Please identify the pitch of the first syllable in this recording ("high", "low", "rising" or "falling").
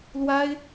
high